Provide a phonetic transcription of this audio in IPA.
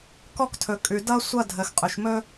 kɔ˥ktʰɵ˩kʼʉ˩ dʌ˥ sʷʌ˥ dʱə˩x qʼɵ˩ʃ mɵ˥

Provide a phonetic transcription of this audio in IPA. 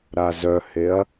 ɾazœheɐ̯

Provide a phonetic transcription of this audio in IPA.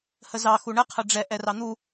həzɑ xuɳə qʰəɖ͡ʐɛ ʔɛrɑn̪u

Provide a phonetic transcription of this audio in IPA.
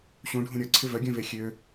ɕũɖʱũ ɾʲɔǀʰɪ vœɡʲœ̃ve xʲø

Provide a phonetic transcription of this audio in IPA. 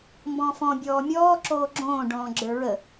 mbɔ̃fɔ̃ bʲɔːmʲɔː ǁoːɡ͡ǁõː ɖɔ̃ːɡ͡ǁə˞ɹə

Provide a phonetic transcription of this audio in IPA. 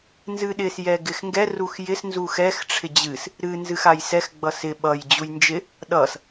nzɨɗɪs jɛɡɪxŋɡɛ ruxjɪs nzuxɛx ʈ͡ʂʰɪd͡ʑɨs | ɾɨ nzɨxajsɛx ɡ͡bʌsɪ ɓʌj d͡ʑujnd͡ʒɪ | ɗʌs

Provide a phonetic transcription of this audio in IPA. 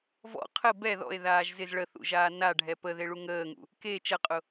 vɔ̰ qʰə bɛ ðɔ̰e̯ ðaːʒzɪz ɭəθṵʒaː na ɖʱɛpə ðeɭuŋəːŋṵ | ke t͡ʃɐqʼʊ

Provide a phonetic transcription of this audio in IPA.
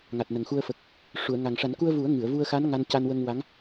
ŋa˨˩t̚nə˨˩ŋxu˧ə̯ fə˨˩k̚ | ʂu˨˩˨ə̯ŋa˨˩ŋʂa˨˩˦n ku˧ə̯vu˨˩˦ə̯ ŋɨ˨˩˨ə̯vu˧ə̯xa˧˥n ŋa˧nca˧nwə˧ŋ wa˧˥ŋ

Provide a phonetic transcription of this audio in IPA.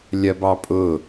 lʲɜbɑpʼʊ

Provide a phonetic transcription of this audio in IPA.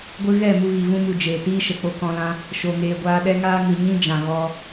ɡʷɨ˧ɣɛ˦˨ mu˧ɣi˨vũ˦mu˨ d͡ʒeː˨tiː˦ʃə˨ k͡po˧kɔ̃˧lã˦ | ʃo˧ŋeː˧ ɡʷaː˧ɗɛ˦ŋaː˦ ŋɨ˨ɲĩ˦ d͡ʒã˨ɣɔ˧

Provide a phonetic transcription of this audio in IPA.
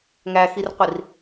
ŋæxirqʷir

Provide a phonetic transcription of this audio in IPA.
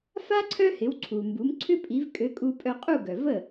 fa˥ ǀʰœ˥hɪ˩˥wǀʰu˩mbu˩˥m ǀʰʏ˥pʼi˩˥v kʼø˩˥kʼu˧pʼœ˧qʼu˥˩ ɡœ˩və˥˩

